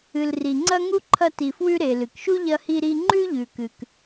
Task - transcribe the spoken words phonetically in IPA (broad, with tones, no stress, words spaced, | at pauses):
ɨ˨lri˨ŋ͡ǀɐ˥ ŋu˥ǃʰɐ˦ti˨fwʉ˦ ɾe˨ lɨ˩kʃu˦ ʎɐ˦hi˦ɾi˦ ŋ͡ǃʉ˥ʎʉ˨kɨ˨k